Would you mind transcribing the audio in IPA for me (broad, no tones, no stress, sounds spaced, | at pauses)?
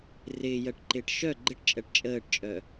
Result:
r ɪː j ɜ ʈ ǃ ɪː ʈ ʃ œ ɡ͡ǃ ɪ ʈ t͡ʃʼ ɜ ʈ t͡ʃʼ əː ʈ t͡ʃʼ œ